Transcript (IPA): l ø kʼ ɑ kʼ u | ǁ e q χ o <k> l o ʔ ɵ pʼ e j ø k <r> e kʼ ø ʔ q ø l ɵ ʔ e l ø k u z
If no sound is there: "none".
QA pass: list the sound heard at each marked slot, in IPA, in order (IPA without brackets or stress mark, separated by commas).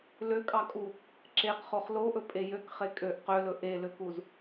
χ, χ